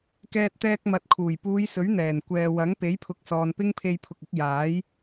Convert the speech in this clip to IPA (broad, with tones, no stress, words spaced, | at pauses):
kɛː˧t̚ t̪ɛː˧k̚mɐ˨˥t̚kʰuː˨˩j puː˨˧jsɵ˨˥ɥ n̪ɛː˨˩nkʷɛː˨wɐ˨˥ŋ pe˨˥jpʰʊ˨k̚sɔː˨n pɪ˥ŋpʰe˧jpʰʊ˨k̚ɪ˨˥k̚ jaː˨˥j